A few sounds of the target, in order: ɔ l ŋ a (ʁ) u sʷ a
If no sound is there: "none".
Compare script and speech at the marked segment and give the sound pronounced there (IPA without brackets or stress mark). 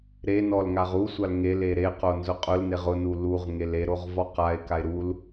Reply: ʁ